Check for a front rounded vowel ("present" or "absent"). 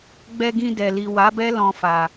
absent